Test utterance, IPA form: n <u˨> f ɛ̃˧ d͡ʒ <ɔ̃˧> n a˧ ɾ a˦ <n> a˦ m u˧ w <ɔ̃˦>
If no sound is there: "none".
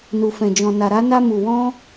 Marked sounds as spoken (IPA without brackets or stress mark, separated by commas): u˧, ɔ̃˧, n, ɔ̃˦